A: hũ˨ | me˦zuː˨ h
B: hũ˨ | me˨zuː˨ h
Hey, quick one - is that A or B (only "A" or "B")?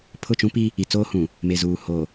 B